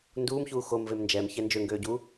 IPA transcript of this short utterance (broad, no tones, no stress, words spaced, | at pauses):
nduːmçuː xomvem nd͡ʒɛmçɛ nd͡ʒøŋɡøːɟuː